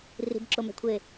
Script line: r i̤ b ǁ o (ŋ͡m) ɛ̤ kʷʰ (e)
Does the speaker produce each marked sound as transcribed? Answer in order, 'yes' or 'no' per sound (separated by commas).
no, yes